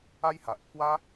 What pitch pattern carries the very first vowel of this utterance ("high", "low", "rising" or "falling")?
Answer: high